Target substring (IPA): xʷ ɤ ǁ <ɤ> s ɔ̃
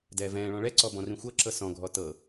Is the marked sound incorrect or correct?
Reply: correct